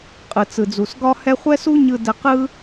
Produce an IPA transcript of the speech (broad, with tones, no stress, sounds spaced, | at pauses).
qʼ ɯ˦ t͡s ɯ˦ d͡z u˦ s ɡ ɒ˥ h ɛ˥ χʷ ɛ˥ s u˥ ɲ ɯ˦ d ɛ˦ q ɯ˥